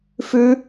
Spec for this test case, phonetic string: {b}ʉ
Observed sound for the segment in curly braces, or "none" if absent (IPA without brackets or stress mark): f